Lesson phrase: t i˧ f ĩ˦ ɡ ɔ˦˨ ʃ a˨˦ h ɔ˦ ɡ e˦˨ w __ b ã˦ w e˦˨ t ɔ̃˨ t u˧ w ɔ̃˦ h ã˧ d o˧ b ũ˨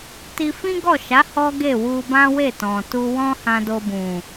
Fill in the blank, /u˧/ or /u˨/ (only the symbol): u˧